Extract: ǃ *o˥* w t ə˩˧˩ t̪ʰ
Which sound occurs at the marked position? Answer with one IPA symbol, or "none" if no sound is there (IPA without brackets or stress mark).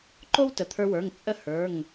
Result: o˥